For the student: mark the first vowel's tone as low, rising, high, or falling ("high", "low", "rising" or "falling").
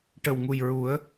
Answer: low